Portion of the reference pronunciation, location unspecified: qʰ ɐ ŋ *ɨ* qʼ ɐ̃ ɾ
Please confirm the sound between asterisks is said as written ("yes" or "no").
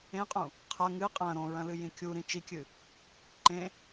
yes